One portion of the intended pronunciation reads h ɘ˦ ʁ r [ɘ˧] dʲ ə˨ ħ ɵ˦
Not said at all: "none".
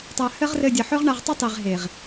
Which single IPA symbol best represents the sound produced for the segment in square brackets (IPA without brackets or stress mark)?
ɘ˧